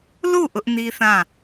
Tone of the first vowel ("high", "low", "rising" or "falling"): falling